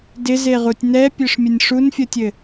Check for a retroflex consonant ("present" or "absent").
present